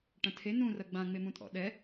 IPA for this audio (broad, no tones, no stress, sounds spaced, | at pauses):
ʈ ɐ̃ tʰ e n ũ r ɐ ɡ͡b ã ŋ͡m e m ũ tʼ ɔ̰ ɗ ɛ